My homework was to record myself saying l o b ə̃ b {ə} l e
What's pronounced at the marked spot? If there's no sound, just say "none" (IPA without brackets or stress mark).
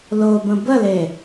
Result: ə